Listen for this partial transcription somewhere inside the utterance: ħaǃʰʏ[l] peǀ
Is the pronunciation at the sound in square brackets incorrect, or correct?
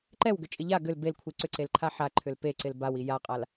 correct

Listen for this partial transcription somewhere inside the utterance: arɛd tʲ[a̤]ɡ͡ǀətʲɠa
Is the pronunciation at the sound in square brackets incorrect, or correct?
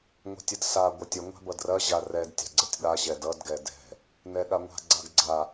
correct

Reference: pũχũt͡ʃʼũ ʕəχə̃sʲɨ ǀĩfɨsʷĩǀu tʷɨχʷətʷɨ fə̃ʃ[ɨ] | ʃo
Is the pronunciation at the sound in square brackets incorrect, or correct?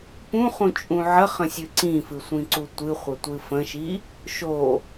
incorrect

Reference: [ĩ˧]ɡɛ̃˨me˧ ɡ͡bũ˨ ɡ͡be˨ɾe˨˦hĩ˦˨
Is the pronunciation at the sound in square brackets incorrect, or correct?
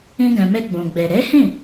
correct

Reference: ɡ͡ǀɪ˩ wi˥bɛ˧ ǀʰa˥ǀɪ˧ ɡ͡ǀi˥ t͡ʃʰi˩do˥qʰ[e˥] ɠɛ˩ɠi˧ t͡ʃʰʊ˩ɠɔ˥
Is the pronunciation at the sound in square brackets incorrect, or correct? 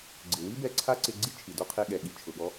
incorrect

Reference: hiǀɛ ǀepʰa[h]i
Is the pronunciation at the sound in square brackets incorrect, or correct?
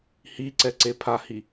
correct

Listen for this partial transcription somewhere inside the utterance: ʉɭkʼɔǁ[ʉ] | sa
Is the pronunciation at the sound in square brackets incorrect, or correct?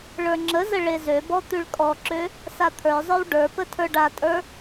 incorrect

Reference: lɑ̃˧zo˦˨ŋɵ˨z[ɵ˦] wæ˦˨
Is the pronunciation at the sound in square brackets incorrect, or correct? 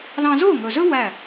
correct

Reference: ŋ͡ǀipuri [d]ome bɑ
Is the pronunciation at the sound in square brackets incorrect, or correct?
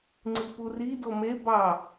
correct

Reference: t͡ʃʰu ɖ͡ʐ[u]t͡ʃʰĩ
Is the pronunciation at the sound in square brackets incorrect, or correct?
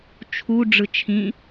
incorrect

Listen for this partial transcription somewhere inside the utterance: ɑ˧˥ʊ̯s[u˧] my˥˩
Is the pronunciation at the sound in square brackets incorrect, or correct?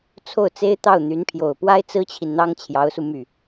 correct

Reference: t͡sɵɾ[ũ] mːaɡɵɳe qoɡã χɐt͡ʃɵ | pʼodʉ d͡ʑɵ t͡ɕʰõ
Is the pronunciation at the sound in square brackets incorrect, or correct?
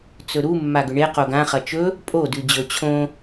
incorrect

